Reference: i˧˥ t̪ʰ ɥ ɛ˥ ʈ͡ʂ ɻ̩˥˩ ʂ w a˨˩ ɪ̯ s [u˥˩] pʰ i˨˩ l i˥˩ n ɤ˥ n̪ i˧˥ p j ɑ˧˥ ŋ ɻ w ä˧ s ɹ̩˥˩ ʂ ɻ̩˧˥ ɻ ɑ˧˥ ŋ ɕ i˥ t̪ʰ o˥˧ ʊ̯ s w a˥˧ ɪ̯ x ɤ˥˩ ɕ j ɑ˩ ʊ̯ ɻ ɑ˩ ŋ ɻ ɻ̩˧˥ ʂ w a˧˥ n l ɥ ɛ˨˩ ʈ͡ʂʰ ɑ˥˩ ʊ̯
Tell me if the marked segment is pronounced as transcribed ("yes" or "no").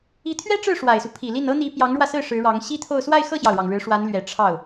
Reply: no